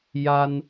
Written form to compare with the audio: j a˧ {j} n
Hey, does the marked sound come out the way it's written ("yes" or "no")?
no